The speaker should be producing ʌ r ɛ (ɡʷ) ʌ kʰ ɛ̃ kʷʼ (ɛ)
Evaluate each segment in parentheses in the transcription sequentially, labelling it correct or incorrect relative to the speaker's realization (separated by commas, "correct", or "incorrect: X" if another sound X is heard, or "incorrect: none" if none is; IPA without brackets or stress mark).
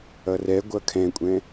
correct, incorrect: ɛ̃